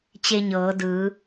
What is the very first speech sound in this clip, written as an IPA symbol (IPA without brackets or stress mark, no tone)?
t͡ɕ